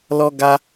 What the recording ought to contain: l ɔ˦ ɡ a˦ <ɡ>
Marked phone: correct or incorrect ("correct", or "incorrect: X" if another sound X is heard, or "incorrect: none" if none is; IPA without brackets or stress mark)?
incorrect: none